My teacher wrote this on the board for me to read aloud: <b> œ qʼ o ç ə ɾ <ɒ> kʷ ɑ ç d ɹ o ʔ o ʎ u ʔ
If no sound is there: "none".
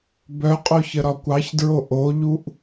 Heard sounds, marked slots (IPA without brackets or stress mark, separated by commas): b, ɒ